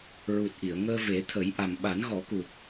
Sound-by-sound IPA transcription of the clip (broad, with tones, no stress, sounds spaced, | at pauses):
ɹ u˨˩ t̚ ʔ i˨˩˨ ə̯ ŋ əː˧ v e˨˩˦ t̪ʰ ə˨˩˦ j ʔ a˨˩ m ɓ a˨˩˦ n ɣ ɔ˨˩˦ k u˨˩ k̚